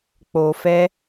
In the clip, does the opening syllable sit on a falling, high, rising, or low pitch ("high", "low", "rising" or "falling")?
low